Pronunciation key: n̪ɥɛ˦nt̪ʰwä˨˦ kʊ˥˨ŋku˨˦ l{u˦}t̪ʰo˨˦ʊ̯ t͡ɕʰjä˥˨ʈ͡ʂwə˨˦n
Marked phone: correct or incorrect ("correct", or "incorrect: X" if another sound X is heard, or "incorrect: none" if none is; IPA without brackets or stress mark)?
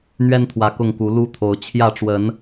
correct